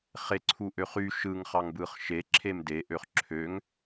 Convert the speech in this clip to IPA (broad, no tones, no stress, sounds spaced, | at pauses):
χ e ǀʰ u ʔ ø χ y ʃ ɯ ŋ χ ɑ ŋ b ɯ χ ʃ e ǁʰ e m d e ʔ ø χ ǁʰ ø ŋ